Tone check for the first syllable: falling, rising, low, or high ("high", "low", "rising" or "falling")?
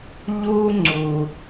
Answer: high